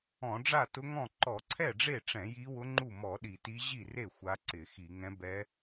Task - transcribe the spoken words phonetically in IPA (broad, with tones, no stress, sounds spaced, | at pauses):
ɔ̃˧˩˧ ɖ͡ʐ a˥˩ t ʊ˧˥ ŋ ɔ̃˥˩ ǃ ɔ˧˩˧ ǀʰ ɛ˥˩ ɖ͡ʐ e˥˩ ʈ͡ʂ ɛ̃˧˩˧ j i˧˥ w ʊ˧˥ ŋ͡ǃ u˥˩ m ɔ˧˩˧ ɗ i˧˩˧ t i˧˥ ʑ i˥˩ r e˥˩ xʷ a˧˥ ǀ ɪ˧˩˧ x i˧˩˧ ŋ ɛ̃˧˥ b ɛ˧˥